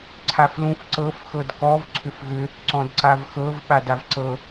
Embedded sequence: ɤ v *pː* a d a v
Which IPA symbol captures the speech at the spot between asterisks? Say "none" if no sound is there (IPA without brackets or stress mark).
ɓ